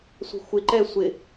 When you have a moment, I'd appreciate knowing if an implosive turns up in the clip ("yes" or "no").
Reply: no